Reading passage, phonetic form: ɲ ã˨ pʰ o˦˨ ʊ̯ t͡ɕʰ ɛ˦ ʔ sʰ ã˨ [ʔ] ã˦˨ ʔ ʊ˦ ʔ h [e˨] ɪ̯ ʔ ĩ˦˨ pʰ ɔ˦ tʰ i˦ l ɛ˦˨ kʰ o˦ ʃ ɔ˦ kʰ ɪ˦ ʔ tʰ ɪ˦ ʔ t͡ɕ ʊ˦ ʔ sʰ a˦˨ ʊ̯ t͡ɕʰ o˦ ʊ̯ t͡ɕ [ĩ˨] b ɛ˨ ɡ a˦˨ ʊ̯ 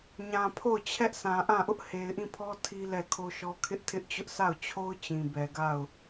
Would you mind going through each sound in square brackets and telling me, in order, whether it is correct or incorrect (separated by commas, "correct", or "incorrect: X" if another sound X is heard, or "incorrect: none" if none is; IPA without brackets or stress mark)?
correct, correct, correct